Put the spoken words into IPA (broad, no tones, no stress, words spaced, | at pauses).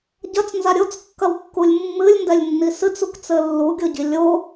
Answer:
ɟɐt͡snza ɾʲot͡skːɐwkːulʲ mːɨlʲndɛlʲnːi sɨt͡sukt͡sɘ lːuɡʲoɟi lʲo